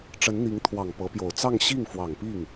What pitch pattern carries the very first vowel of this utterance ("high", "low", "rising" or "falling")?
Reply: rising